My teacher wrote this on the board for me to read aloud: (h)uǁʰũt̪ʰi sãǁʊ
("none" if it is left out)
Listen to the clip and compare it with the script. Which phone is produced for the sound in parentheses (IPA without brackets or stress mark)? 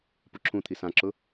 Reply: p